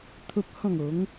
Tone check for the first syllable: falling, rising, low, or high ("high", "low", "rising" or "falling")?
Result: high